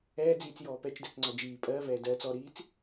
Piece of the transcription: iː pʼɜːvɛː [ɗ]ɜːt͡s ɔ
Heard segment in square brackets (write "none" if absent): d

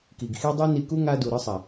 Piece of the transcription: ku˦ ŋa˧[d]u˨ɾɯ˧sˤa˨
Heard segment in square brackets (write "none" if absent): d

